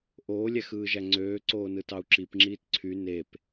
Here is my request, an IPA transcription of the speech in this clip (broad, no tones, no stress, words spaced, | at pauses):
ʔoːlʲæxɯːʒæ ŋ͡ǀøːǀoːnɯtɑu̯ ǁipŋ͡ǁiːt ǀʰy nep